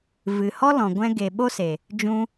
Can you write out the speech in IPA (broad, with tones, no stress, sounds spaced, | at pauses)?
v ɨ˨ h ɔ˦ l ɔ̃˨ ɡʷ ɛ̃˧ ɡ e˨ ɓ o˦ s e˨ | d͡ʒ ũ˦